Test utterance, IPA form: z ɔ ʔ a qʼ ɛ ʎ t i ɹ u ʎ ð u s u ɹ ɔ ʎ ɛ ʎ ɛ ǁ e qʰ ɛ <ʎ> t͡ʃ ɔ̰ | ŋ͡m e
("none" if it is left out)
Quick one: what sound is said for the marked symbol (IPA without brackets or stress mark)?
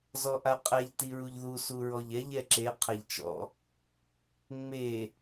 ʎ